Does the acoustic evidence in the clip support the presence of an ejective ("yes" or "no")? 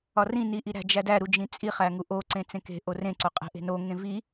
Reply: yes